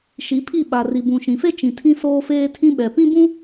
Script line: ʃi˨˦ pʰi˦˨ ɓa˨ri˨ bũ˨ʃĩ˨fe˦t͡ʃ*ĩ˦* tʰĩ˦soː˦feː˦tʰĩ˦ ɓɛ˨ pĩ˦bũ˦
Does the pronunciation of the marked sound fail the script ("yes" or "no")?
yes